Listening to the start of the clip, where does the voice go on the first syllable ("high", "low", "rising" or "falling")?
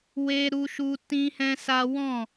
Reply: high